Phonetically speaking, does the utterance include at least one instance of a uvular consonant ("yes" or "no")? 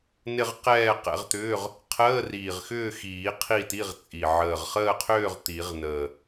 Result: yes